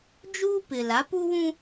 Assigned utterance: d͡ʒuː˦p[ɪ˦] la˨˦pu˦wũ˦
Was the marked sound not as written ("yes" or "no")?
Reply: yes